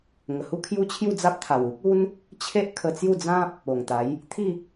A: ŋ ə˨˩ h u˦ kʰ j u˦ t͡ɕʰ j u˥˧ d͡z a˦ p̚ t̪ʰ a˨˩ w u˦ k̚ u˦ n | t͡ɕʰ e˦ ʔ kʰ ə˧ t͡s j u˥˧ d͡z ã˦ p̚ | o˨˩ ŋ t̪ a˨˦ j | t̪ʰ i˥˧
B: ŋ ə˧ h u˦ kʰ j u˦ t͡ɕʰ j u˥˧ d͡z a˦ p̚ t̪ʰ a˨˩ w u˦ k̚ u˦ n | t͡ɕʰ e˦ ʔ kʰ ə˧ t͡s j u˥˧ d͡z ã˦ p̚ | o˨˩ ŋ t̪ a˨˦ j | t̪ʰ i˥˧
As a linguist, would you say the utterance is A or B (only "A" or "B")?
A